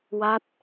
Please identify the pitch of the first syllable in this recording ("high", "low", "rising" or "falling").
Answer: falling